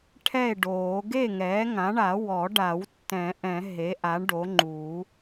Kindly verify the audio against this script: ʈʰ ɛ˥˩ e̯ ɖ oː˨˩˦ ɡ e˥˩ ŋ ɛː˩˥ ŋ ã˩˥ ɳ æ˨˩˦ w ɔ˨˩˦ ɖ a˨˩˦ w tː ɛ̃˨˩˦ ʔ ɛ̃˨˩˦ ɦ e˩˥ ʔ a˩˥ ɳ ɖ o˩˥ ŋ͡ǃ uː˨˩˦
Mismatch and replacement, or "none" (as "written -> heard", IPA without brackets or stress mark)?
æ˨˩˦ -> a˨˩˦